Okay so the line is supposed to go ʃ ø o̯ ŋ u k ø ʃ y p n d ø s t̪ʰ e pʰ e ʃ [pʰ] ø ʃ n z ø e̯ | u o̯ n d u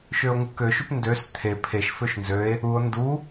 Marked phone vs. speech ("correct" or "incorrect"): incorrect